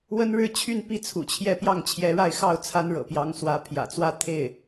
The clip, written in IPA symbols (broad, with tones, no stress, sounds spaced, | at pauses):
w ə˥ n ɻ ɻ̩˥ t͡ɕʰ y˥˩ n p i˥ t͡sʰ ṵ˨˩ t͡ɕʰ j ɛ˥˧ p j ɑ˥˩ ŋ t͡ɕʰ j ɛ˧˥ ɻ a˥˧ ɪ̯ x ɑ˥˩ ʊ̯ t͡sʰ a˥ n ɻ ɤ̰˨˩ p j ɑ˧˥ ŋ s w ä˧˥ pʰ j ä̰˨˩ t͡s w ä˥ t̪ʰ e˥˩ ɪ̯